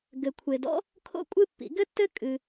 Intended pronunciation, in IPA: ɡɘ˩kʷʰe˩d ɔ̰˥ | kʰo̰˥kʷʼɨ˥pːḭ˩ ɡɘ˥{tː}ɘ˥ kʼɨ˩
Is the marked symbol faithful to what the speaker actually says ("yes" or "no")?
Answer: yes